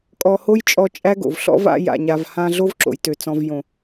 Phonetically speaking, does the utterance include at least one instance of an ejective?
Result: yes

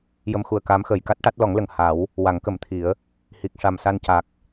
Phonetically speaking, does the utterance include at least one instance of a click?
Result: no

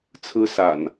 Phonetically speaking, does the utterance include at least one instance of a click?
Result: no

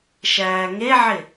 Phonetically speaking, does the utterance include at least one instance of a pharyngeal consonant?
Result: yes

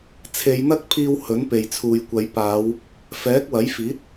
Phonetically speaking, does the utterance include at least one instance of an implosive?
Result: no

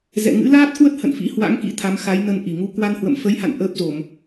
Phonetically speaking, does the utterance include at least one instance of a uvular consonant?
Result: no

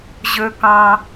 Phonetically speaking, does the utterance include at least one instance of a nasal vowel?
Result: yes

